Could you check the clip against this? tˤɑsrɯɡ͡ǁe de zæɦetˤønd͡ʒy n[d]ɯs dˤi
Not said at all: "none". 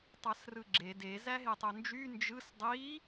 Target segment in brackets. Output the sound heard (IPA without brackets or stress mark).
d͡ʒ